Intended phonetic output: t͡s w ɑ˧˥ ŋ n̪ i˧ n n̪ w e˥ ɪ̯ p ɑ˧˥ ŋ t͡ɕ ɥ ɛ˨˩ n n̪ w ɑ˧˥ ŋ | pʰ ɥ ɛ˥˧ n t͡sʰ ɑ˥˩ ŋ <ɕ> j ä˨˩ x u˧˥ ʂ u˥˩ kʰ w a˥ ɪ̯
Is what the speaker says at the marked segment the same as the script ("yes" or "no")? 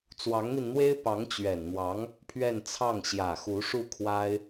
yes